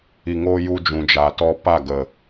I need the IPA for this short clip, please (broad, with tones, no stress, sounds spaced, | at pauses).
i˨ ŋ oː˧ j u˧ d͡ʒ ũ˨ d͡ʒ a˨ t ɔ˦ p a˦˨ ɡ ə˨